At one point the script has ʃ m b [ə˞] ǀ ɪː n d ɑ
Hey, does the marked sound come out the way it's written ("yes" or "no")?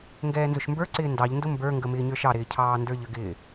yes